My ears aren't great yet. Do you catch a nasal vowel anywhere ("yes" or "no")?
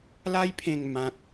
yes